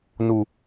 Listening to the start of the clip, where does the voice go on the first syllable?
low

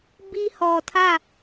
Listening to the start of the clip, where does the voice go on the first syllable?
high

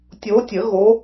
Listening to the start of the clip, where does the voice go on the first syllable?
rising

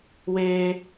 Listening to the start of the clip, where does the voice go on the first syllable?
high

